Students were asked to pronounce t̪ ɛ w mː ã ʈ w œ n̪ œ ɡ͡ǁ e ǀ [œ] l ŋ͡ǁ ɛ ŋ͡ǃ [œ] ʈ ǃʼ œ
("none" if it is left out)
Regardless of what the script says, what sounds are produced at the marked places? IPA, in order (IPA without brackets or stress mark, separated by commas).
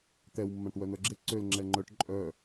ø, œ